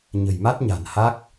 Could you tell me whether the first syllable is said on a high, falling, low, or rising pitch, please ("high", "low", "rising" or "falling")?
low